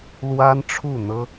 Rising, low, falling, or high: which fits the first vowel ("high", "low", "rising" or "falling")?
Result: high